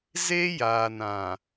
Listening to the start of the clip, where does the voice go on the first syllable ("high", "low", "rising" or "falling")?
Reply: high